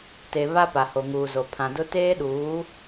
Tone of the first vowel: low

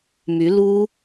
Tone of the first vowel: rising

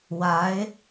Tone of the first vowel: rising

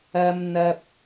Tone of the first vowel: high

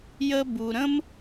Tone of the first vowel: high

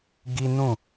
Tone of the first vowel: high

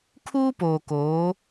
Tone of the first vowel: high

